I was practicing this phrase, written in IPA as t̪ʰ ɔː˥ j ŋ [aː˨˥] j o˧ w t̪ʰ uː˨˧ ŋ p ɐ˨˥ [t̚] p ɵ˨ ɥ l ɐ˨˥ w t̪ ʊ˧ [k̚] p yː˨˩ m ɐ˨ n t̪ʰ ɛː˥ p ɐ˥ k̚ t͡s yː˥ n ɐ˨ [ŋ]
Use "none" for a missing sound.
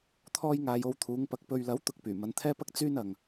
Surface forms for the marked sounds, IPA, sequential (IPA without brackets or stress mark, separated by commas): aː˧, k̚, k̚, ŋ